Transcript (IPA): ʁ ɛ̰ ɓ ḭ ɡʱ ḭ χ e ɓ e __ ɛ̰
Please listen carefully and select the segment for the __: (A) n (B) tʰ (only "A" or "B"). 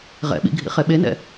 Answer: A